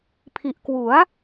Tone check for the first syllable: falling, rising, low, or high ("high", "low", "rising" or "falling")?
low